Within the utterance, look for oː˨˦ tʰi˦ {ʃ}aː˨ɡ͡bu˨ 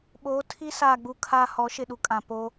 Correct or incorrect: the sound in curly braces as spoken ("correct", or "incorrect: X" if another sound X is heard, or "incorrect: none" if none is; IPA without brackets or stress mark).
incorrect: s